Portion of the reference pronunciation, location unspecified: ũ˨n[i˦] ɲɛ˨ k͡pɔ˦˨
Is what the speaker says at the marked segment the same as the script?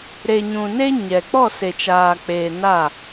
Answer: no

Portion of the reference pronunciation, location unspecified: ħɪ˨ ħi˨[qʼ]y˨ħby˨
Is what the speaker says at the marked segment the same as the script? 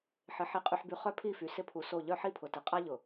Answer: yes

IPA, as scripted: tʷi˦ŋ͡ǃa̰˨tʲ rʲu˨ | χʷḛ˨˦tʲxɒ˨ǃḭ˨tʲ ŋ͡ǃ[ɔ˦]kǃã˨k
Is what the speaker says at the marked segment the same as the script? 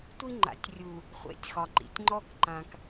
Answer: yes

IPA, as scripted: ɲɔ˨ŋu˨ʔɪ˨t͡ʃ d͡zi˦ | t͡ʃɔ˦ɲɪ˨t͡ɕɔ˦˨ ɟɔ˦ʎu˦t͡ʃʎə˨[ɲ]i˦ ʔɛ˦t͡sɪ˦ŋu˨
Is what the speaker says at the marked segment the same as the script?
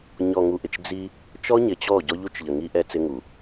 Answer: no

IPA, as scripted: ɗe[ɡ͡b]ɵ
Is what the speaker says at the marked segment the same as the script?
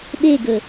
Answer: no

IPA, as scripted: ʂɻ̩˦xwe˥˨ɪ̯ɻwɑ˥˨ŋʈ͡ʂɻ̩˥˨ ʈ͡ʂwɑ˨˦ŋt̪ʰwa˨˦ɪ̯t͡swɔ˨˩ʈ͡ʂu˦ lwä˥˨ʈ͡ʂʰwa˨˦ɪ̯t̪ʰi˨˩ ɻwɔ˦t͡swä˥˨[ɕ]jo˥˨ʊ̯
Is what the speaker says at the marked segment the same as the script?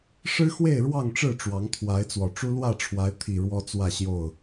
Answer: yes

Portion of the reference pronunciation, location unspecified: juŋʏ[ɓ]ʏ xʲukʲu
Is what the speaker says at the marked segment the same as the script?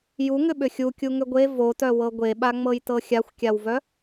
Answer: yes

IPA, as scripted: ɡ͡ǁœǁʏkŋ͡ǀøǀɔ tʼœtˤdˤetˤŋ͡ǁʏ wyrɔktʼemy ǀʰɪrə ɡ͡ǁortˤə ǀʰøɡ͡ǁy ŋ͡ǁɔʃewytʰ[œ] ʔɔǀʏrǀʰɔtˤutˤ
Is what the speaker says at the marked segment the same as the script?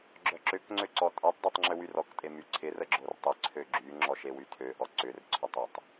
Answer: no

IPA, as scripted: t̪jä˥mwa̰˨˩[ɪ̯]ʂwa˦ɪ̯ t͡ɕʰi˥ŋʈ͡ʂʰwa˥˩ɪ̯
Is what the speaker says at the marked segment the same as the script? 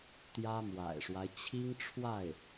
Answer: yes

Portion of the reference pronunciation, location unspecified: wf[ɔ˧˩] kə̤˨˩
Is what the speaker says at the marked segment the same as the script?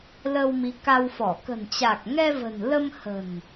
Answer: yes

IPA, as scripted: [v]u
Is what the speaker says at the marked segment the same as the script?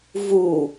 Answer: yes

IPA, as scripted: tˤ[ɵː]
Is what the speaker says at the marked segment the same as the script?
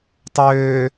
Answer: no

